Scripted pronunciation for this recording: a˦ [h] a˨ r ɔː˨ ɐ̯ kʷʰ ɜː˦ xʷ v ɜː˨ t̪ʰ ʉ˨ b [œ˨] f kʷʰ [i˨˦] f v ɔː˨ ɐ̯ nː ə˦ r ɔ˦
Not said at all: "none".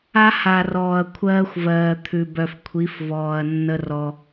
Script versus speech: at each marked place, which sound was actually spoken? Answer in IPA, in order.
h, œ˨, i˨˦

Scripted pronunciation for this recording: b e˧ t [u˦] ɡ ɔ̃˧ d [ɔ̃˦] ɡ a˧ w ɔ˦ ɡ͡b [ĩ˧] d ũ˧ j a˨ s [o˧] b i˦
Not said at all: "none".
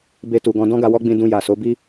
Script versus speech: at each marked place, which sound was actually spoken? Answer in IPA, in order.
u˨, ɔ̃˦, ĩ˧, o˨˦

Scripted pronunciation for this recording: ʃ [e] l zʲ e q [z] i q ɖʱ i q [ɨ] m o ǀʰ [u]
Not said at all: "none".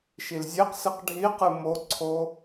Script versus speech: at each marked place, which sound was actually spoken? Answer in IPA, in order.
i, s, ɨ, o

